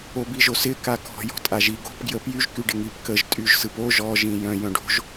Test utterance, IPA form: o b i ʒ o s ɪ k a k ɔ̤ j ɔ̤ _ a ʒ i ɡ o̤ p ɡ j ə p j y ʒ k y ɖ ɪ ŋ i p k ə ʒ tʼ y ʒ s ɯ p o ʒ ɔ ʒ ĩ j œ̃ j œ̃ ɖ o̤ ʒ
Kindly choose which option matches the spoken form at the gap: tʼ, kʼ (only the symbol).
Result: tʼ